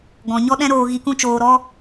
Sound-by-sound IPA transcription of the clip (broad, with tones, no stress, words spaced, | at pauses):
ɡɔ̃˨ɲɔ˦ɗɛ̃˦ɾoː˧ ɣi˧kũ˦t͡ʃoː˧ɾɔ˦